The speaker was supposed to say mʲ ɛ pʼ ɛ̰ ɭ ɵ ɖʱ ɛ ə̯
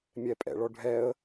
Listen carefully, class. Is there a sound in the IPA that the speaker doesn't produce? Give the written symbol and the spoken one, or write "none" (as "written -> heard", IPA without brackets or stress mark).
ɵ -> ɔ